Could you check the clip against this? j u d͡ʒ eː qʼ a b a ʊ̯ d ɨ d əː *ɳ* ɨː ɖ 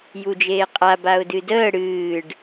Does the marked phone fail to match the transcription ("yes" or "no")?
yes